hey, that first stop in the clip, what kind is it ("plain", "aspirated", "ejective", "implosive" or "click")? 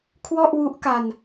aspirated